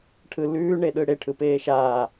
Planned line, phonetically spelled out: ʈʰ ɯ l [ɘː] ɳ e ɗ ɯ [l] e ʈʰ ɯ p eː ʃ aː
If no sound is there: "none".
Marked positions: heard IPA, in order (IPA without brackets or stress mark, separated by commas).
ʉː, ɽ